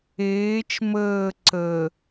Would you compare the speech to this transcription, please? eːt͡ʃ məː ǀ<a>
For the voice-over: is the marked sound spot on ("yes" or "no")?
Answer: no